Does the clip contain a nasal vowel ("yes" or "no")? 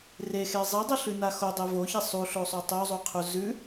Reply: no